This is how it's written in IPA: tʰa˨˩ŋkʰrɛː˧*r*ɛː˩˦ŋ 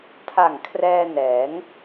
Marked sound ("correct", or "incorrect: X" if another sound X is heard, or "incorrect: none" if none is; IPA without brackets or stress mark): incorrect: n